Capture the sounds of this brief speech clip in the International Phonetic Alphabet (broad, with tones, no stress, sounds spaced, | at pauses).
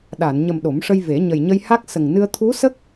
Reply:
ɗ a˨˩˨ n ɲ ə˨˩ m ɗ o˨˩˦ m ʂ ə˧ j v e˨˩˦ ɲ ə˨˩ j ɲ ə˧ j h a˦˥ k̚ s ə˨˩ ŋ n ɨ˧ ə̯ t̪ʰ u˧˥ s ə˦˥ k̚